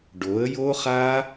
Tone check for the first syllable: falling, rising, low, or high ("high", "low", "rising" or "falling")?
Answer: rising